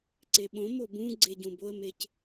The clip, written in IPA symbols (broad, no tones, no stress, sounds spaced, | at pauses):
ǀ e ɓ õ m o b ũ ɡ͡ǀ e ɟ ũ b o ə̯ m e c